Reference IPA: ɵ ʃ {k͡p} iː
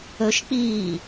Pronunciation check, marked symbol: correct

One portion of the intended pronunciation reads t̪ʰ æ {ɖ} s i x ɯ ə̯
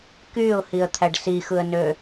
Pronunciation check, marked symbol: correct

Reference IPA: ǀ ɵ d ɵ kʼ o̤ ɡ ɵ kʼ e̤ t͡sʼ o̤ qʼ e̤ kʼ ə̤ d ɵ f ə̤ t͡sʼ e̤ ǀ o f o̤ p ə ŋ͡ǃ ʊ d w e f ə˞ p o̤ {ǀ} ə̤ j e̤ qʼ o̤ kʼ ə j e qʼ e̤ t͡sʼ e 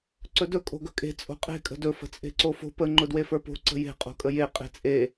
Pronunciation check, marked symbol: correct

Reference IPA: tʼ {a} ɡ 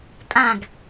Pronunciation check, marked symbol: incorrect: ã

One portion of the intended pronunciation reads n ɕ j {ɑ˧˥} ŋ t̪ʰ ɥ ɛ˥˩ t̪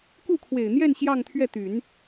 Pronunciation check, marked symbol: incorrect: ɑ˥˧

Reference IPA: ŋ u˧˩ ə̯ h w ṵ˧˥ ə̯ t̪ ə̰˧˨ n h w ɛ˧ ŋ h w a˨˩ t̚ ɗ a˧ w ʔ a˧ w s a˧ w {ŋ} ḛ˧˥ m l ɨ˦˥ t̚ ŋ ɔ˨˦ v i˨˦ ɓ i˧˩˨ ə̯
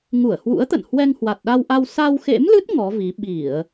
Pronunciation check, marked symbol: incorrect: x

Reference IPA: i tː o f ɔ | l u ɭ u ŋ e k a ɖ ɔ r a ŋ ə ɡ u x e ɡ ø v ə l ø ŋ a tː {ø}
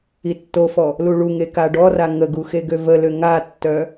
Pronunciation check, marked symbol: incorrect: œ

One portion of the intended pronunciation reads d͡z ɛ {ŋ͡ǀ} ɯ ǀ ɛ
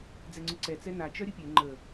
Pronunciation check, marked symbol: correct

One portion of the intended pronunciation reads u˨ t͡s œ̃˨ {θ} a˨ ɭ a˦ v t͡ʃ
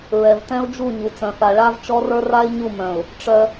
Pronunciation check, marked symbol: correct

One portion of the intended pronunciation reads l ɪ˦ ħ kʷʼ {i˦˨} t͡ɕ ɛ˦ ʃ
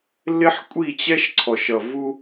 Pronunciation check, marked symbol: correct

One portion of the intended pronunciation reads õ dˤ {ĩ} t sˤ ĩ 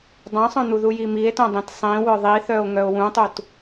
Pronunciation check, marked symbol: correct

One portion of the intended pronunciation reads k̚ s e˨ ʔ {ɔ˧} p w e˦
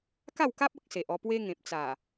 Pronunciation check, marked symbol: correct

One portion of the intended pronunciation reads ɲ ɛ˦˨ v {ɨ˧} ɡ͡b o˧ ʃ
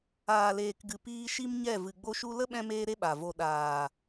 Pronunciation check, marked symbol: incorrect: ɨ˨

